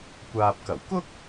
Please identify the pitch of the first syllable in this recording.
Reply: low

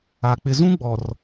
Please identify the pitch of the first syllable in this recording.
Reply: low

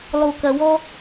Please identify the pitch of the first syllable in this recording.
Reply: low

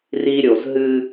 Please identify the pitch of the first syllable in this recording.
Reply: high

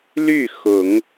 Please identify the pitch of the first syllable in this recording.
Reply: falling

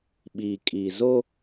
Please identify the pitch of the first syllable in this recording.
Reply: low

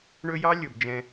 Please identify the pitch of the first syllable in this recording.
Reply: high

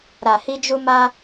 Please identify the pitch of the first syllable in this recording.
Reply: low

